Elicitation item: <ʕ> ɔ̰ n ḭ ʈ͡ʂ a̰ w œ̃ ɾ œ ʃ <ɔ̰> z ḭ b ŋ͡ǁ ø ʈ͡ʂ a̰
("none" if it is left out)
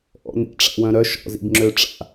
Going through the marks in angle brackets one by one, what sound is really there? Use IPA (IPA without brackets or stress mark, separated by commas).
ʔ, ɔ̰